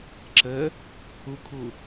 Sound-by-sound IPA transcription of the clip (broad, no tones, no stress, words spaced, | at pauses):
ǁə | ukʰu